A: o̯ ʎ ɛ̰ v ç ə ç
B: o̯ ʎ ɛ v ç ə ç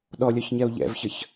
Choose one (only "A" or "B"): A